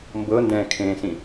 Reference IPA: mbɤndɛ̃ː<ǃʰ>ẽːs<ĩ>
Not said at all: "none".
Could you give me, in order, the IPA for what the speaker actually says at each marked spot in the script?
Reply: kʰ, ĩ

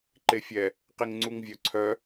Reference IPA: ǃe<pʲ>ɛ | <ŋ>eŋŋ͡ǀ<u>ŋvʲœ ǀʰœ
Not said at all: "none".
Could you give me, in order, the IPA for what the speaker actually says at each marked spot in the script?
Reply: fʲ, q, u

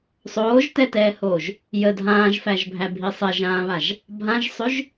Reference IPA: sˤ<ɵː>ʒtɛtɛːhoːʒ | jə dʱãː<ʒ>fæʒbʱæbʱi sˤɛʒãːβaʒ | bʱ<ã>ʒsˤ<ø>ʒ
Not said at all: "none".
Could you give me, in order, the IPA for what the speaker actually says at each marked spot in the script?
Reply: oː, ʒ, ã, ø

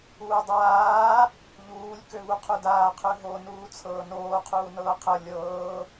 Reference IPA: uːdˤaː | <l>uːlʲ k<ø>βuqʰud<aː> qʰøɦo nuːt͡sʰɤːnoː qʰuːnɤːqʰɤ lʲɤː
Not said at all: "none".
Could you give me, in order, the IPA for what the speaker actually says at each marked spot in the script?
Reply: ʎ, ø, aː

